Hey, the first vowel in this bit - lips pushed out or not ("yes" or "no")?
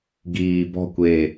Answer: no